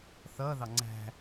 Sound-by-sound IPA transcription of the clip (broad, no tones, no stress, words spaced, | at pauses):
θʌðɑ ŋ͡ǀæ̤